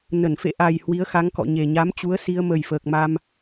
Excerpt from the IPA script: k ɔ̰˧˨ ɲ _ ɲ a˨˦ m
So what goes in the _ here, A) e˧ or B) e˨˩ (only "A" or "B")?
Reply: B